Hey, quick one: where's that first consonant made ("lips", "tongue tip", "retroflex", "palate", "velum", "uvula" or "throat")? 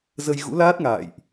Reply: tongue tip